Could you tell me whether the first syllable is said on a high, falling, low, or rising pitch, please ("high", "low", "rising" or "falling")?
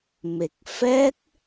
low